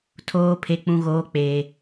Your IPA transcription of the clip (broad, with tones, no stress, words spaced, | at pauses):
tʰoː˨pʰe˨k͡pũ˨ɣoː˨ k͡peː˨